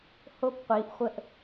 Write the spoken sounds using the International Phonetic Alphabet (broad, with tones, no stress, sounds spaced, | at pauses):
h o˧ p qʷ i˩˧ ʔ χʷ ə˧ ʔ